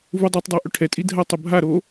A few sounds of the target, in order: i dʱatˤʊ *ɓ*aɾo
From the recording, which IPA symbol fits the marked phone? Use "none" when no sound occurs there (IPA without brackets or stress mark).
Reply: bʱ